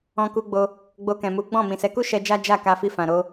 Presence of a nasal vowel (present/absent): present